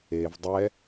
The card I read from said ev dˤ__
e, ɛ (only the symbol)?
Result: ɛ